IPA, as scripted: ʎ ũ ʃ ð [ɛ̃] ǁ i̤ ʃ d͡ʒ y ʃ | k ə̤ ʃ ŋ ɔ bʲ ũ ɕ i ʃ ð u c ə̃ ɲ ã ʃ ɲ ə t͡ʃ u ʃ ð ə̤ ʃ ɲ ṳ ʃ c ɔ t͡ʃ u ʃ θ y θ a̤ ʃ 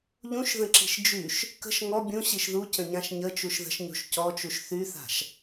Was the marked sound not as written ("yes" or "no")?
yes